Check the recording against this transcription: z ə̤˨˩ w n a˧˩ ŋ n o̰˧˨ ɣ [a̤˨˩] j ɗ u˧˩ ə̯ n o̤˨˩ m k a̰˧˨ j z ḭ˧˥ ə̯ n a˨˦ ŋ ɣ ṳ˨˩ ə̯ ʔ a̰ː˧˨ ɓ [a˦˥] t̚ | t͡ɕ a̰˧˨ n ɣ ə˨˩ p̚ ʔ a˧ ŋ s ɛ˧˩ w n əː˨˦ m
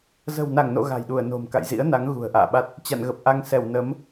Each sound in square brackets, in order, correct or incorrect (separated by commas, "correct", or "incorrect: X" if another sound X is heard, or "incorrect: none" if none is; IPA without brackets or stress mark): correct, correct